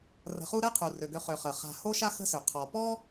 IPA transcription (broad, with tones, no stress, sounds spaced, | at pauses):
r ə̤˨ χ u˦ ɾ ɛ˥ qʰ u˩ r ø˩ ɡ ø˨ χ ø˩ χ ə˩ χ a̤˨ h o˦ ʃ a˥ x ə̤˦ s ø˩ qʰ ɔ˩ p ɔ˥